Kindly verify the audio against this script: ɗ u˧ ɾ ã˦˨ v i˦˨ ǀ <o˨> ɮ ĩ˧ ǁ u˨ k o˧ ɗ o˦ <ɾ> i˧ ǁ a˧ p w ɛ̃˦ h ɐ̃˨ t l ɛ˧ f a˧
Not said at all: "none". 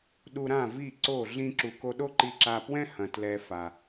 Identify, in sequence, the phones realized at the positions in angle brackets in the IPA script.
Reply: o˦˨, ǃ

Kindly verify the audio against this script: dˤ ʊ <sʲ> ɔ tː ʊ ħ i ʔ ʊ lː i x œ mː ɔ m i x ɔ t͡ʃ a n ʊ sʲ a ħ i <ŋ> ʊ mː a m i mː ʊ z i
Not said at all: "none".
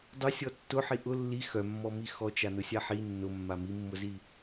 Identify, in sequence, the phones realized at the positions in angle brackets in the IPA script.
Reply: sʲ, nː

